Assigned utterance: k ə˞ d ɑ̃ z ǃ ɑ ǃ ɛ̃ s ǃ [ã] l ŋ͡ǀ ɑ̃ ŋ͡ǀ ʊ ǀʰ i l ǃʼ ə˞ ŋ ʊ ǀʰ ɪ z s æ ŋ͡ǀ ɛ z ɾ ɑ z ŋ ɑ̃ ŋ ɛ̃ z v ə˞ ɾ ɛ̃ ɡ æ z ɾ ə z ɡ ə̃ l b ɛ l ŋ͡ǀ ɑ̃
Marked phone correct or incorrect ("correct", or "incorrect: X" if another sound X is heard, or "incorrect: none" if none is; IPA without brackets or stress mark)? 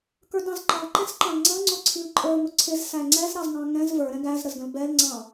incorrect: ɑ̃